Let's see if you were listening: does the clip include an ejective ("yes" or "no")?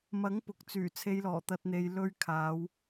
no